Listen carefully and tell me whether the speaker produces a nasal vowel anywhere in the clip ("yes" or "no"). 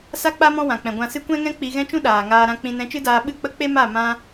yes